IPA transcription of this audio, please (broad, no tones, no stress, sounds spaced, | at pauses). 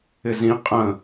ɪ z ĩ qʼ ə̃